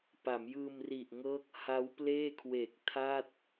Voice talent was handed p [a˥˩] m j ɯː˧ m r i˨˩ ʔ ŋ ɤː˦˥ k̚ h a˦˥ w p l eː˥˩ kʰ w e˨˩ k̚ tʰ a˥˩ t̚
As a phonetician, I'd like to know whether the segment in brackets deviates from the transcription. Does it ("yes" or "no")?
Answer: yes